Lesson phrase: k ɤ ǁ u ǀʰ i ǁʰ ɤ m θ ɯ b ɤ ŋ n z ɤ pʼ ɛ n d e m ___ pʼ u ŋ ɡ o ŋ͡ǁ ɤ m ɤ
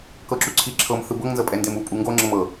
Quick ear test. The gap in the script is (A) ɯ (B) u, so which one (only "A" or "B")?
B